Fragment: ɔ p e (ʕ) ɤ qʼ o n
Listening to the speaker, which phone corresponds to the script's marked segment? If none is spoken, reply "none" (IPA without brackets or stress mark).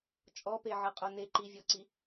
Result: ʕ